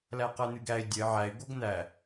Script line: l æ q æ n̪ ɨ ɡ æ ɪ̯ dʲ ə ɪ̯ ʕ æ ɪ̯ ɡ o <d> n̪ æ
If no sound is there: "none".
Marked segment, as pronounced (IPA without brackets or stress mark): ɡ